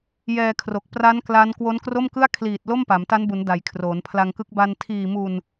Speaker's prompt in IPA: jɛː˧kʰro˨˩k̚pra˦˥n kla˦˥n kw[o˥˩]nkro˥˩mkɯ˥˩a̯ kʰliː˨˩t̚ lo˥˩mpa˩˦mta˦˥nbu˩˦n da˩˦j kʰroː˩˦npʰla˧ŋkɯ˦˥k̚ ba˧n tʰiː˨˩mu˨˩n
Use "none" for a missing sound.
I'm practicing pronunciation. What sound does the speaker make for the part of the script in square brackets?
o˦˥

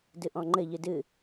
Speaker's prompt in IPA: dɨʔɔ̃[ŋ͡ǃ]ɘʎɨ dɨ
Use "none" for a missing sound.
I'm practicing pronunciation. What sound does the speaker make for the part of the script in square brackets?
ŋ͡ǃ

